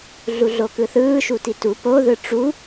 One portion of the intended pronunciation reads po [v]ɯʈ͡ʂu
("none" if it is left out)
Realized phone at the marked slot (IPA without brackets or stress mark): ð